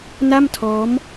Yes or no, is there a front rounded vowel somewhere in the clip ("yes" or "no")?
no